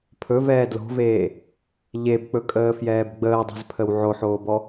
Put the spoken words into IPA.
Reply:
pʰ ɵ v ɛː d l o̤ v eː | ʎ e b k͡p ɵ kʼ əː f j ɛː b ɡ͡b əː dˤ ɛ̤ z pʰ ə w ʕ o ħ oː b ɔ

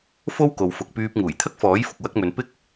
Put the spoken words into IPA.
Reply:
f o˥ w k o˨ w f ʊ˨ k̚ p yː˧ p̚ ŋ uː˨˩ j t̪ʰ ɐ˥ k̚ f ɔː˨˥ j f ʊ˨ k̚ w ɐ˧ k̚ m ɵ˨ n p ɪ˥ k̚

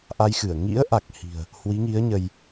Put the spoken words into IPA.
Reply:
ʔ a˧ j x ɨ˧˩ ə̯ ŋ ḭ˧˥ ə̯ ʔ a˨˩ k̚ h i̤˨˩ ə̯ | h w i˨˦ ŋ i˨˦ ə̯ ɲ ə˧ j

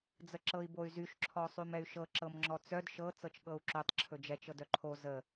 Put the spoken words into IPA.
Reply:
d͡z ə ǁ ɤ i̯ b o y̯ z y ʃ ǁʰ ɔ sˤ y m ɛ y̯ ʃ ɤ ǁ ɤ m ŋ͡ǁ ɔ t͡s œ d ʃ ɤ t͡s ɤ t͡ʃ ɠ ɤ u̯ ǁ ɵ tˤ ǁʰ ɵ d͡ʒ ɛ t͡ʃ ɤ d œ ǃʰ o z ə

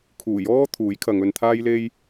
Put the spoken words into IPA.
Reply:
kʰ uː˨˩ j ɔː˥ t̪ʰ uː˨˥ j kʰ ɐ˨˧ ŋ ɵ˧ n t̪ʰ aː˥ j l e˥ j

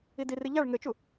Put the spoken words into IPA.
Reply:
i d i r i ʎ a ɭ ŋ ɘ t͡ʃ u

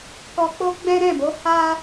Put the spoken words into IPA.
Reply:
k ɔ˧ k͡p o˦ ɡ͡b ɛ̃˦ ɾ ɛ̃˦˨ b o˨˦ h a˦

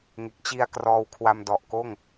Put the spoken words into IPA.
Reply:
ŋ e˨˩ k̚ t͡ɕ i˧ a̯ k r ɔː˧ w kʰ w a˧ m d ɔ˨˩ ʔ k oː˥˩ ŋ

